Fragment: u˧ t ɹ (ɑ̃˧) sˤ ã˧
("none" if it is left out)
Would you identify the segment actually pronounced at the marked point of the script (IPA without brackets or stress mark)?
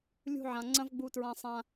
ã˧